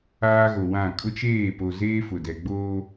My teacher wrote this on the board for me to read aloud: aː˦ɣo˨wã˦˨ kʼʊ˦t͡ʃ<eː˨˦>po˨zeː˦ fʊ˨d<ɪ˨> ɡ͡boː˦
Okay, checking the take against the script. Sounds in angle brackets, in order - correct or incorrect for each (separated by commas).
incorrect, incorrect